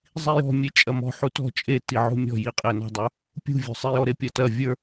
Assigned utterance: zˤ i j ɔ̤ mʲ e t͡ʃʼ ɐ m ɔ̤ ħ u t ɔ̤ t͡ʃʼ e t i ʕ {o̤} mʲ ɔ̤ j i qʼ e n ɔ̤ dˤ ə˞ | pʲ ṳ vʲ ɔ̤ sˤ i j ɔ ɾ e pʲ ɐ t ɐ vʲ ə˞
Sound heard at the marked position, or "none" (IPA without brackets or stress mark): ṳ